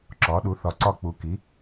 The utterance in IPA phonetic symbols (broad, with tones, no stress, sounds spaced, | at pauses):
ǁ ɒ˩˥ ɗ u˩˥ θ ɒ˨˩ ǀ ɒ˦˨ k͡p u˩˥ k i˩˥